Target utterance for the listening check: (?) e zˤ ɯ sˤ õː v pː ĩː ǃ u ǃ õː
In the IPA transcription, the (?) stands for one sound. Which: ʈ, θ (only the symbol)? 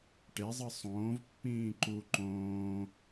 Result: ʈ